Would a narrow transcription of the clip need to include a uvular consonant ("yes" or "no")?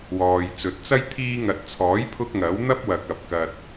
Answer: no